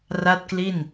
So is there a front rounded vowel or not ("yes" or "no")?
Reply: no